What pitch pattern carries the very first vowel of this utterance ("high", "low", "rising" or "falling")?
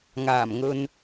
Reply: low